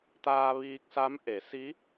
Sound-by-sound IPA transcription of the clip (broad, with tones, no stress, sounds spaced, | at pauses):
t̪ aː˧ ʋ iː˧ k̚ s a˧˥ m ʔ e˩˧ s i˧˥